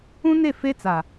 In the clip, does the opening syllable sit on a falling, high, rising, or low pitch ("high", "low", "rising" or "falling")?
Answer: high